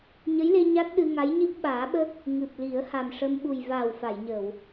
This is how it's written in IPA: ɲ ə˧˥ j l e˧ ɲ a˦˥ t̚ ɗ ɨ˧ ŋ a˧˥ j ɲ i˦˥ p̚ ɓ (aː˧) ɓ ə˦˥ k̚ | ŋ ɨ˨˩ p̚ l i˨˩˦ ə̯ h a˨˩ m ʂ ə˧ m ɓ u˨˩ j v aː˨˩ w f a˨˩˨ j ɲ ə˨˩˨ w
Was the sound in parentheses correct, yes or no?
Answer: no